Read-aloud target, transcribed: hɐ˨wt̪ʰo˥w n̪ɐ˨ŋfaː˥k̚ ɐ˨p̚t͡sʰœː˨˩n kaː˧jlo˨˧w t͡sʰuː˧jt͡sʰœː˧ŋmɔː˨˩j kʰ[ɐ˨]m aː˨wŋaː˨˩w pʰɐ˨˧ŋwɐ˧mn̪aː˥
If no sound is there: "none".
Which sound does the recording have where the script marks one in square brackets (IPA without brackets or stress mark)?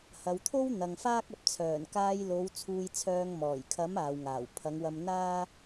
ɐ˨˥